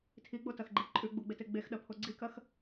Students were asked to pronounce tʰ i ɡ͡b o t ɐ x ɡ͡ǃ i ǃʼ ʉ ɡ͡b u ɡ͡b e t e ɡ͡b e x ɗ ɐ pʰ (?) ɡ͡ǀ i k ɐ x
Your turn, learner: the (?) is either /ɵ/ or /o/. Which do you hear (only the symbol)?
o